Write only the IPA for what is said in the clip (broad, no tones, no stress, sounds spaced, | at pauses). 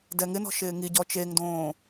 d ɛ ŋ ɪ n ɔ̤ ʃ ɪː ŋ i ɟ ɔ t͡ʃ e ŋ d õː